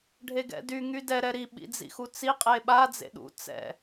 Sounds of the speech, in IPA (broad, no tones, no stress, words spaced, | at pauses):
ɖʱeɡɛ̰dy ŋydɛ ɾɛɾi ɓḭd͡zḭxut͡si qʼeɓa d͡zḛɗṵ t͡sɛ̰